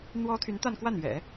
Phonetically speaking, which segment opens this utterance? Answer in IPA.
n̪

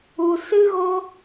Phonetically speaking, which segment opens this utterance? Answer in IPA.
u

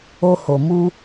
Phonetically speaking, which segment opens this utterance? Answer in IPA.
o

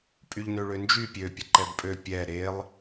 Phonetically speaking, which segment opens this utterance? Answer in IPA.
pʼ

